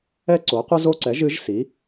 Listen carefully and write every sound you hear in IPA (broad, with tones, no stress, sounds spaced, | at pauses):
ɛ˦ ǀ o˩˥ qʷ ɨ˦ z o˦ ǀ ɛ˩˥ ʒ ɨ˩˥ ʒ s i˩˥